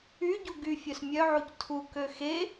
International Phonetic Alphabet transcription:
y ɟ u ɡ y fʲ œ s mʲ œ ʕ u c tʰ u k ø x e

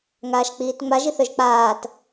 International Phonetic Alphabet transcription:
ŋ aː ʃ k͡p iː t ŋ͡m a ʒ i θ œ ʒ k͡p aː t

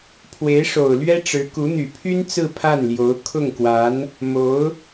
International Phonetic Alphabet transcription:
pʰ w e˧˥ ɪ̯ ʂ o˨˩ ʊ̯ l ɥ ɛ˥ ʈ͡ʂ ɻ̩˧˥ k u˧˥ n̪ y˨˩ pʰ y˥ n t͡s ɹ̩˥˧ pʰ a˥˩ n l j o˧˥ ʊ̯ kʰ ʊ˥˩ ŋ k w a˧˥ n | m o˧˥ ʊ̯

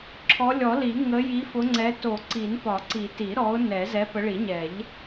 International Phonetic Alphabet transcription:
ǁʰ ɔ˨˦ lʲ ɔ˨˩˦ l i˨˩˦ ŋ ə˨˦ j i˨˦ f ʊ˨˦ ŋ͡ǀ ɛ˨˦ t o˨˩˦ ǀ i˨˩˦ n p ɒ˨˩˦ ǀ i˨˩˦ t i˨˩˦ ɾ ɔ˨˦ ʊ̯ n ɛ˨˩˦ z ɛ˨˦ p ə˨˦ ɭ i˨˩˦ ɲ ɛ˨˩˦ ʎ

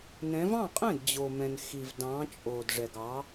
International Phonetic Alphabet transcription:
n ɛ̃˨˦ v ɑ̃˥˩ qʼ ɛ̃˥˩ d d͡ʑ o˨ m ɛ̃˨ n x i˨ v d ɑ̃˨˦ t͡ʃʼ o˨ d ʐ ɛ˨ ɡ ɑ˨˦

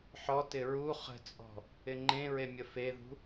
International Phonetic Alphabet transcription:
ħ ɔ t ɪ ɹ u χ ə̤ t͡sʼ ɔ̤ | ɪ ŋ͡ǃ ẽ ɹ e mʲ ə f e ð ṳ

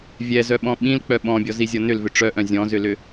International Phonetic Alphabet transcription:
vʲ ɛ z œ ɓ ɔ̃ ɓ ĩ l k͡p œ ɓ ɔ̃ bʲ ɔ z i zʲ ɔ n ʏ l v ʏ ʈ͡ʂ œ ʔ œ̃ zʲ ɔ̃ z ʏ l ʏ

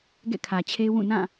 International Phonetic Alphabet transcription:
ɡ ɛ̰˦˨ kʰ ä˨ t͡ɕʰ e˦ w ũ˦˨ n ã˦˨

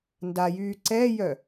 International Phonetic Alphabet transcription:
n d a j yː ǀ ɛ j œ

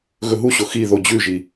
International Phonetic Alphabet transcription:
ɣ ɵ ɦ u ɕ o x i ð o d͡ʑ ʉ ʒ i

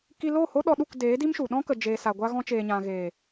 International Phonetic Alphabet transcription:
k i˧ l o˦˨ h o˦ ɗ ɔ˧ ɗ u˦˨ k d eː˨˦ d i˦ m ʃ u˨ ɗ ɔ̃˦ k ə˧ d͡ʒ eː˧ s a˧ ɡʷ a˦ ɣ ɔ̃˧ t͡ʃ eː˨ ɲ ã˨ ɣ eː˨

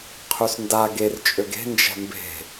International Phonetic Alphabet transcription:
qʰ y s n d a ɡ e r t͡ʃʼ ø ɡ e̤ n d͡ʒ ɛ̤ m b e̤

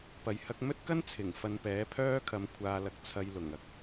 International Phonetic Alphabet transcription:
p ɐ˨ j h ɐ˧ k̚ m ɵ˥ t̚ k ɐ˥ n t͡sʰ ɪ˨˩ ŋ f ɐ˨ n p ɛː˨˥ pʰ œː˥ kʰ ɐ˨˧ m kʷʰ aː˧ l ɐ˧ k̚ t͡sʰ ɐ˧ j l ʊ˨˩ ŋ ɐ˧ k̚

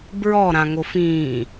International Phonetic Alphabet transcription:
b ɹ ɔ ɾ ã ŋ o f ĩː

